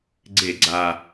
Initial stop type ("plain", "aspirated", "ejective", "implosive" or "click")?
click